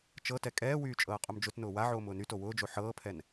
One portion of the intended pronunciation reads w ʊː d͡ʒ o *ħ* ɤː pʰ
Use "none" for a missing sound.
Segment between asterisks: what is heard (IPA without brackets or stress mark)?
ħ